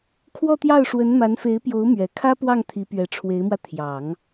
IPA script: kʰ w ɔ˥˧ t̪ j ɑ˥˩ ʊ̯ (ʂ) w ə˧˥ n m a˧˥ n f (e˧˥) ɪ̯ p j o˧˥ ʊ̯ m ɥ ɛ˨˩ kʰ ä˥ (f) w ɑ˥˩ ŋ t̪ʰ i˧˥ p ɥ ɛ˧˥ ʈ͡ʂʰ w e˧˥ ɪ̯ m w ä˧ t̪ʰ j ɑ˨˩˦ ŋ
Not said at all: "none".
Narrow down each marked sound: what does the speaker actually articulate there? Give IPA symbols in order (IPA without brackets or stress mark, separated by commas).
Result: ʂ, e˧˥, p